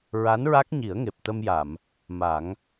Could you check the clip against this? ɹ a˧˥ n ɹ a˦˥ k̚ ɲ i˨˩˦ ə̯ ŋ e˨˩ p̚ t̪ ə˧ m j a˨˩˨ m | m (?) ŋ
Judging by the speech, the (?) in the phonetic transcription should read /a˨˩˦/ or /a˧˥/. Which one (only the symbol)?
a˨˩˦